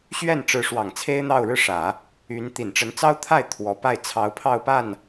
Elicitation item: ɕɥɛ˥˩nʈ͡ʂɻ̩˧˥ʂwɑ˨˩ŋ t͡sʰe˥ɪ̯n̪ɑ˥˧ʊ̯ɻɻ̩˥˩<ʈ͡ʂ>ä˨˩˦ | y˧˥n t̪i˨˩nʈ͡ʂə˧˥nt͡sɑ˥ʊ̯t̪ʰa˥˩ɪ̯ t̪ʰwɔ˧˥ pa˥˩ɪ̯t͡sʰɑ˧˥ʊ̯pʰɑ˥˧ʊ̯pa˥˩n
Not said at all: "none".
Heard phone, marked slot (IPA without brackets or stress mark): ʂ